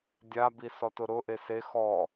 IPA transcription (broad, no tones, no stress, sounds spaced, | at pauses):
dʲ a b i s ɔ t ʊ ɾ ʊ ʔ e s e x ɔ